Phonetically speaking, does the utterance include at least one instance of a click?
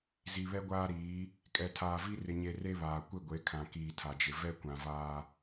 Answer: no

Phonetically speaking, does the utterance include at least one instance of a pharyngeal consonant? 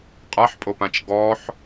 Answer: yes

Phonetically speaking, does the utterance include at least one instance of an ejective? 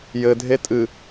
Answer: yes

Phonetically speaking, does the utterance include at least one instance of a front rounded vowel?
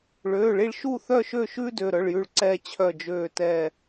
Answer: yes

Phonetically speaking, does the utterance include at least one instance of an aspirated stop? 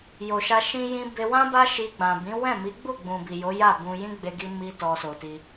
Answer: no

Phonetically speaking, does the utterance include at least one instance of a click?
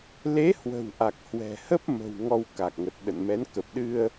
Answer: no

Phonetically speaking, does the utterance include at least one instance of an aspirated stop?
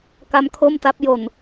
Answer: yes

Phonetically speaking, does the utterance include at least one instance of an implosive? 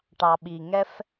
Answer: yes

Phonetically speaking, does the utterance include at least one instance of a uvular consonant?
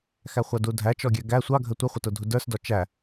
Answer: yes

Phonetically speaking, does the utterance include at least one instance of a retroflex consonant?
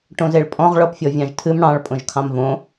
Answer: yes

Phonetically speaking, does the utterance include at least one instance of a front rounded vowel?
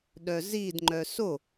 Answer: yes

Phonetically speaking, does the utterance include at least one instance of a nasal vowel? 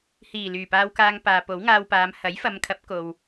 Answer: no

